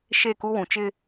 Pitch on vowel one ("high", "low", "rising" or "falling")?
falling